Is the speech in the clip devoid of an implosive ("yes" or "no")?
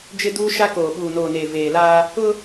no